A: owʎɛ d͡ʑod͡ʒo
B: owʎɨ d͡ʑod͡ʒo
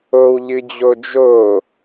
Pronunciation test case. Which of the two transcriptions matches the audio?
B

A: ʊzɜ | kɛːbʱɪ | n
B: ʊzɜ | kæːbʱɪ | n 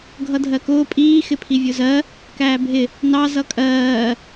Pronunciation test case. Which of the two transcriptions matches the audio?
B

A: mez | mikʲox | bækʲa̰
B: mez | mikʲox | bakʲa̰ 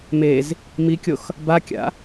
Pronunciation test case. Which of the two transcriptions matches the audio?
B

